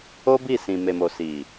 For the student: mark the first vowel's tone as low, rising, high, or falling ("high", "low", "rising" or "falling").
high